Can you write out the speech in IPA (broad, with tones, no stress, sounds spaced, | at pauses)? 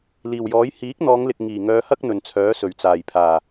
l iː˨˩ w j ɔː˨˥ j h iː˨˥ k̚ n̪ ɔː˨˧ ŋ l ɪ˨ k̚ ŋ iː˨˩ ŋ œː˨˧ h ɐ˥ k̚ n̪ ɵ˨ n t͡sʰ œː˨˥ s ɵ˨˩ ɥ t͡s aː˨˩ j pʰ aː˨˩